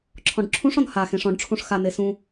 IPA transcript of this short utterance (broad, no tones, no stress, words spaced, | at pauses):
ǁʰɔ̃ɖǁʰũʂɔ̃n ha xẽʂɔ̃ɖʈ͡ʂʰũʂ xane sũ